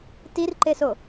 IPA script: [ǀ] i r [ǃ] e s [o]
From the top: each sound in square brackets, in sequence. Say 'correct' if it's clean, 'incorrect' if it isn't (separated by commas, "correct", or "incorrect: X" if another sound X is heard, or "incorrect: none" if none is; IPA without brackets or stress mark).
incorrect: t, correct, correct